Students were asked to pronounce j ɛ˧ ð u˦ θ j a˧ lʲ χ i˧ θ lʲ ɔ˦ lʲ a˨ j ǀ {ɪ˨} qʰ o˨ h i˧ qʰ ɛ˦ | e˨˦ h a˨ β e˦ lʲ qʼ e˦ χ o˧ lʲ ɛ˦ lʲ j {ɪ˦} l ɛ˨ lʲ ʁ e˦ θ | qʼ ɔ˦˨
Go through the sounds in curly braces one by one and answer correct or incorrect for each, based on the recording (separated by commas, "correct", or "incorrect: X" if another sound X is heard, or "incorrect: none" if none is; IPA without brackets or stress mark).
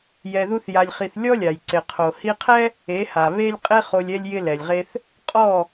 correct, correct